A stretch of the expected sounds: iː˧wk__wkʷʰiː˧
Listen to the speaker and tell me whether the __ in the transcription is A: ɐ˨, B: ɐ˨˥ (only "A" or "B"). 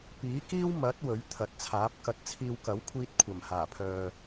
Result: B